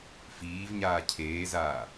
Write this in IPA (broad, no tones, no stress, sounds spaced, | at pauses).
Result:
f iː v ɲ aː cʰ eː z aː